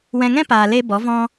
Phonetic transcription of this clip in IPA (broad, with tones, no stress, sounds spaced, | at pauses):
w ɛ̃˧ ŋ ɛ̃˦ p aː˧ l e˦ b ɔ˨˦ v ɔ̃˧